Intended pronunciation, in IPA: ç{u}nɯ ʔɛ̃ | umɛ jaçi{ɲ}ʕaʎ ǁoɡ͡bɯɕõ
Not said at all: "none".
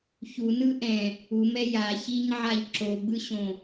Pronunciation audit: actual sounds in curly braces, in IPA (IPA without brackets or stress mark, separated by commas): u, ɲ